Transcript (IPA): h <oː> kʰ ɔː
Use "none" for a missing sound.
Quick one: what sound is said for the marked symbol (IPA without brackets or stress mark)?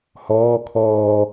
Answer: ɔː